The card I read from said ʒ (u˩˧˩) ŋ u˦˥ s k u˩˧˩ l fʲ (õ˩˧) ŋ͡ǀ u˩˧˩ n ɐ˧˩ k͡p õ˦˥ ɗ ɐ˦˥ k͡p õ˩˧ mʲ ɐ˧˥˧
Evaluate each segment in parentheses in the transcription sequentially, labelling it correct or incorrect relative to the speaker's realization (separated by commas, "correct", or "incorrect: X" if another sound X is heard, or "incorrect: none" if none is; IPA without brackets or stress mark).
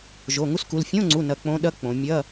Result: incorrect: o˩˧˩, incorrect: õ˧˥˧